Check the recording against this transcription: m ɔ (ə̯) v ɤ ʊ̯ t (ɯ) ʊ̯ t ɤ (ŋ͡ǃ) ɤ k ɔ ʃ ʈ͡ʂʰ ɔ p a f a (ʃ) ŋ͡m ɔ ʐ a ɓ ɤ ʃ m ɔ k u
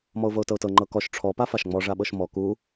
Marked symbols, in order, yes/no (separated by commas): no, no, yes, yes